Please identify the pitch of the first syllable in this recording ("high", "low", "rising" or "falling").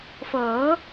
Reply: rising